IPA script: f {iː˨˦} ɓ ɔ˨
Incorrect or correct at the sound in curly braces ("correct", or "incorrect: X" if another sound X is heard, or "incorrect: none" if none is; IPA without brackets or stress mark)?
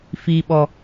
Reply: incorrect: iː˨